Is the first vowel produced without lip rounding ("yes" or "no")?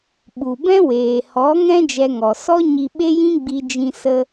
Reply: no